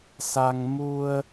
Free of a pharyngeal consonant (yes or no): yes